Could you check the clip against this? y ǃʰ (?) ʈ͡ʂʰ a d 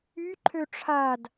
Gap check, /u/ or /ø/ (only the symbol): ø